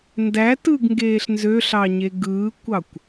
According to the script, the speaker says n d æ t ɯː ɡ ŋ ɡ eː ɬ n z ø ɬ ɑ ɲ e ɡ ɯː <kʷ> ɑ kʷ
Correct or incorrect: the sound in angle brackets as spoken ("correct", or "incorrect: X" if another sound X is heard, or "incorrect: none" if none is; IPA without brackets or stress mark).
correct